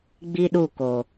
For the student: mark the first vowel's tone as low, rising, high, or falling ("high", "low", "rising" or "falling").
low